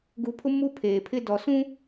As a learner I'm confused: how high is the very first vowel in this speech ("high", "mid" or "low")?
high